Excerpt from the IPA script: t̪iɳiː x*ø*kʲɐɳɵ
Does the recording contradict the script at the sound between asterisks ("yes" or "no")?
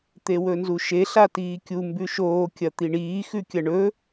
yes